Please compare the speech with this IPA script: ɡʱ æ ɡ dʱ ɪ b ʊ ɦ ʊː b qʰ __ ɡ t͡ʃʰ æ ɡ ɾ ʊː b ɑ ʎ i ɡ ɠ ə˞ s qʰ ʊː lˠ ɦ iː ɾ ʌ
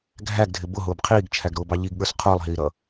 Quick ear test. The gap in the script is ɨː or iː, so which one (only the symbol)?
iː